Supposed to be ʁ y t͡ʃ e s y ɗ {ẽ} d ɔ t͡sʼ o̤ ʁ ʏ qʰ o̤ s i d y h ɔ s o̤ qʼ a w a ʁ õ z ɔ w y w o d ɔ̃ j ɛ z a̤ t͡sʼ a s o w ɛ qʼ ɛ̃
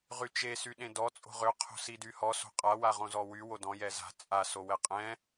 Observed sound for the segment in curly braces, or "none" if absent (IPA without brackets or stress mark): ẽ